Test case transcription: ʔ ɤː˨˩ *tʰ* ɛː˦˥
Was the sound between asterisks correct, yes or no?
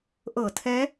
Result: yes